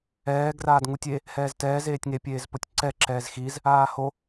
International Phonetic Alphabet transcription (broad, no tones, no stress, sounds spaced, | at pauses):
ɛː ɡ r aː d ŋ u tʲ e | h ɛː z t ɛː z eː tʲ ŋ e pʲ eː z p o tʲ ǀ ɛ ǁ ɛː z x i z | aː h o